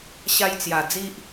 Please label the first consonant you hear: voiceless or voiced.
voiceless